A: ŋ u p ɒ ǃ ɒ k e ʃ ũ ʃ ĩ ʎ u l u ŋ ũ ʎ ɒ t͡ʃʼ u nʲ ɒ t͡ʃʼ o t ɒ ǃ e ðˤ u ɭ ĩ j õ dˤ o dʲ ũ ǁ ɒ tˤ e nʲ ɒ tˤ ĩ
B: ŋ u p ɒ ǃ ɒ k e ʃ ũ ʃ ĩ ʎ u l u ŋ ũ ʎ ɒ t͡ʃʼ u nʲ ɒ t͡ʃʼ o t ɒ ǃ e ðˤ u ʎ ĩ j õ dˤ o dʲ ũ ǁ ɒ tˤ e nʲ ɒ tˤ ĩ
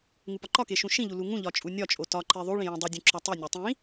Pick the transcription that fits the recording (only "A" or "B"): A